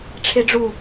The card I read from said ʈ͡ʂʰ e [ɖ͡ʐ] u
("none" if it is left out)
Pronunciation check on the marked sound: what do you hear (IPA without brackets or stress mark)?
ɖ͡ʐ